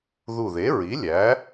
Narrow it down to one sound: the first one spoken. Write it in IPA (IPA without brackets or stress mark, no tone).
ð